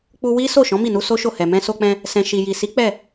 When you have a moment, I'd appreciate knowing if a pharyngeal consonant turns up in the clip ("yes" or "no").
no